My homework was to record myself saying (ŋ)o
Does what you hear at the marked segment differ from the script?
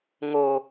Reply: no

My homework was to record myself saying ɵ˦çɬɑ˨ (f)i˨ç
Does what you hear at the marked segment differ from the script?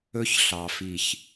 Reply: no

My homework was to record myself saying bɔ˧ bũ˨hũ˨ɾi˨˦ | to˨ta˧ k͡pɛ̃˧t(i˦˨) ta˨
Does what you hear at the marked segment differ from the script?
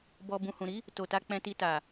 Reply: yes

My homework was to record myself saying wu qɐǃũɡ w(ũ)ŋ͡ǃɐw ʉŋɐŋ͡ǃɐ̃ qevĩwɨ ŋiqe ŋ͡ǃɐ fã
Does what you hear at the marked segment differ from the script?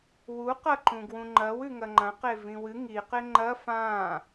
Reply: no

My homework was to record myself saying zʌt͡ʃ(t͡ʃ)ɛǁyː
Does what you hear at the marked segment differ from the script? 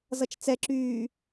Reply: yes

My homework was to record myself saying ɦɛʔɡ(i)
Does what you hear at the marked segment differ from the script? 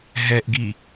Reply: no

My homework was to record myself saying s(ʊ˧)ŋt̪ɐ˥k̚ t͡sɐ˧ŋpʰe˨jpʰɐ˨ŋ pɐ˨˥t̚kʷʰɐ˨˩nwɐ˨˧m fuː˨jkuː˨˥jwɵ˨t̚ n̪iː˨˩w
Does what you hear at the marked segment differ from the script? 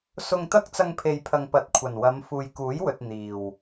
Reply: no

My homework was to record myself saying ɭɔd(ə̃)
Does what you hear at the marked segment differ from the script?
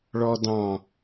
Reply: yes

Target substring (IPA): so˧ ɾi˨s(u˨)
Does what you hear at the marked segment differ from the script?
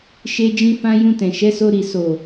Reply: yes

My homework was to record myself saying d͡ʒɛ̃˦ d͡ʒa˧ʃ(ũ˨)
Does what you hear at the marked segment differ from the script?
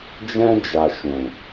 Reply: no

